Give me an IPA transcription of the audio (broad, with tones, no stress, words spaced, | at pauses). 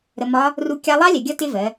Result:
ɾə˧mɒ˦˥ | ru˧ kʲɑ˧lˠɑ˦˥ lʲɛ˩ɡʲʌ˦˥ tɪ˦˥vɜ˩˧